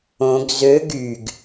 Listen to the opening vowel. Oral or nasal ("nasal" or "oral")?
nasal